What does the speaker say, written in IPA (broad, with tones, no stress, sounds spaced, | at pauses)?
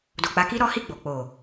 d o˨ k͡p a˨˦ k i˦ ɾ ɔ˦ h i˦˨ ɡ͡b o˨ k͡p o˨